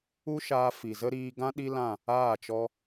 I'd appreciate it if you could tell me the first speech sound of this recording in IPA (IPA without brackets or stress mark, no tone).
u